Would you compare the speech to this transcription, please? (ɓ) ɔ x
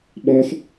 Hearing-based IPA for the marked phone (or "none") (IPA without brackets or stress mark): ɓ